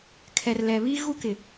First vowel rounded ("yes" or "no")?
no